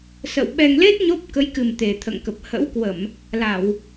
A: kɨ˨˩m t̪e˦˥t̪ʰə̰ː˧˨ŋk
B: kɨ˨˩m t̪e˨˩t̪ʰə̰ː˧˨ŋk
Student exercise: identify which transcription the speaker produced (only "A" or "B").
B